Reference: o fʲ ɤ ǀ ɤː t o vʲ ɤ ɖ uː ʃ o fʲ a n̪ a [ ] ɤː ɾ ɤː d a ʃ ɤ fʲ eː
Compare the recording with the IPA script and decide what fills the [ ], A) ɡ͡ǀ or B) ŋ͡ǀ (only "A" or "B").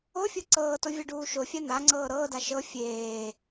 B